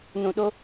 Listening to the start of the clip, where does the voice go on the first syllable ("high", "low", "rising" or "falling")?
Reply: low